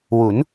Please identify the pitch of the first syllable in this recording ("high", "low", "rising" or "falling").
rising